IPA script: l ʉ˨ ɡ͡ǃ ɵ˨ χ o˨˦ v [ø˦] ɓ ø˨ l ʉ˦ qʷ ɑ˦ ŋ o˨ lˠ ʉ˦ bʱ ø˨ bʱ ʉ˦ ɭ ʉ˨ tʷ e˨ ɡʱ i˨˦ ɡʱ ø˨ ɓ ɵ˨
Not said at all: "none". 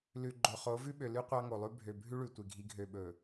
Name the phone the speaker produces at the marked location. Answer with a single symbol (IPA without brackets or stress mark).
ʉ˦